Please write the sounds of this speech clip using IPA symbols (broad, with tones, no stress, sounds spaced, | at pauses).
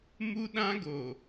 m u˦ ɗ ã˦ ɡ o˨